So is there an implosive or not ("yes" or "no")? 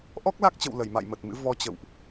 no